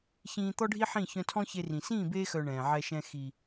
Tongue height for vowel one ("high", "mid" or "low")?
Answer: high